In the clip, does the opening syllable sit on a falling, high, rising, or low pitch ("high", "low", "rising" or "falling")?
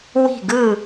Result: falling